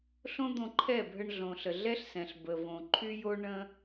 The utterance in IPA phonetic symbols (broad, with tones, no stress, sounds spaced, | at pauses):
ɬ õ˦ d̪ õ˧ ǃʰ ɛ˦˨ bʱ ə˧ ɳ ɮ õ˨ ɬ ə˨ ɮ ɛ˦ ɬ s ɛ̃˨ ɬ b ə˨ v õ˨ ǃʰ y˦ j o˦ ɳ ə̃˦